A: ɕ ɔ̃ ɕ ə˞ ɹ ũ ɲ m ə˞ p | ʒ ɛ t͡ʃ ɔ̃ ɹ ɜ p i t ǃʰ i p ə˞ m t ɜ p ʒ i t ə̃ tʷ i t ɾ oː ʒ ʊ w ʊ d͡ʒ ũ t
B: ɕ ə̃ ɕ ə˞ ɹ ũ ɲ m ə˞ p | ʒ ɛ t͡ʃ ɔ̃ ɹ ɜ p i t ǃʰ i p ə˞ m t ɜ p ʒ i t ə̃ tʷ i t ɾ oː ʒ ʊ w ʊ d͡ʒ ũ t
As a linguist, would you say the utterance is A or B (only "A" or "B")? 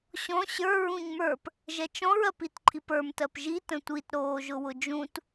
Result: A